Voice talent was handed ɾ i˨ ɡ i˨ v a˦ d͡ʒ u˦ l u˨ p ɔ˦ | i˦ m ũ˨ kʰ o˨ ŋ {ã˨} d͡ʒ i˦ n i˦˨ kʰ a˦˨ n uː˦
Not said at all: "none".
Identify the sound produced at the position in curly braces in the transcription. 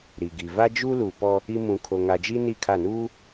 a˨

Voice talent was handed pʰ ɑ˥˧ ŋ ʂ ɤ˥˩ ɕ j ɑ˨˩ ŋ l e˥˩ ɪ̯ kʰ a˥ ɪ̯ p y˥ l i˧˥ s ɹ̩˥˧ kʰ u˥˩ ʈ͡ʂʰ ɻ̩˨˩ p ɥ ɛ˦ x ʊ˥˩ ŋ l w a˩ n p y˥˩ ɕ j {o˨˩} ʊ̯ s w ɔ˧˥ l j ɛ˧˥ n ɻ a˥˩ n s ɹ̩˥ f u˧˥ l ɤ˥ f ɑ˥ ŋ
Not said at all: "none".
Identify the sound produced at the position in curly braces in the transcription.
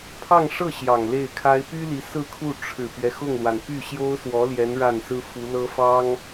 o˥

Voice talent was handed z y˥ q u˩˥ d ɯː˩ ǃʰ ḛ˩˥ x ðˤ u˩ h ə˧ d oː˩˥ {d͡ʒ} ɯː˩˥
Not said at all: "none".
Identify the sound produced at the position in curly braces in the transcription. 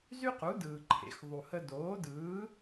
d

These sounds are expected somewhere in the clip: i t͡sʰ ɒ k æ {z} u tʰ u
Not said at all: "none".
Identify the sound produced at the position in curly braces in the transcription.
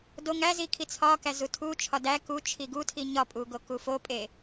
z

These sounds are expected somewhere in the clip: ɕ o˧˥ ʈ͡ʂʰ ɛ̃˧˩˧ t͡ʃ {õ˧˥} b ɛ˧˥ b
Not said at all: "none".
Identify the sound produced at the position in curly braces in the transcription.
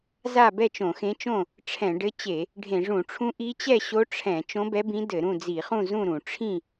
õ˧˥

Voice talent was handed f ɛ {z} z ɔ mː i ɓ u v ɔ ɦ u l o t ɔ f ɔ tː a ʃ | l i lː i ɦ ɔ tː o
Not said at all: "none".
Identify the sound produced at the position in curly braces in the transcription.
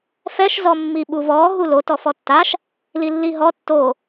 ʃ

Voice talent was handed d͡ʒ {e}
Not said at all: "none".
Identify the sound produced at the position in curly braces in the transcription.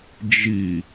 i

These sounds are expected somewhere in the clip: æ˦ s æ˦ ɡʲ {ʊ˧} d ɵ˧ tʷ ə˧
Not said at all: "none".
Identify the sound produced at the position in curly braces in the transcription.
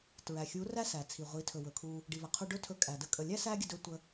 ə˧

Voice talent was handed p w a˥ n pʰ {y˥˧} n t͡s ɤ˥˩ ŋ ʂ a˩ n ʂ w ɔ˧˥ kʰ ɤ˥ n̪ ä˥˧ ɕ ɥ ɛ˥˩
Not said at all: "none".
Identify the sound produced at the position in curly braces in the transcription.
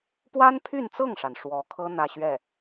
y˥˧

